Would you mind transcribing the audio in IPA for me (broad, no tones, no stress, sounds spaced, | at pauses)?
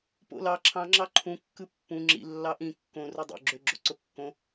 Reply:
p o̰ l ɑ ǁʰ ɑ̃ ŋ͡ǁ ɑ ǃʰ ũ kː ɯ pː ũ ŋ͡ǁ ḭ lː ɑ ʔ ĩ kː õ r u dˤ o̰ ɡ͡ǁ ø ɡ͡ǁ o ǀ o kː õ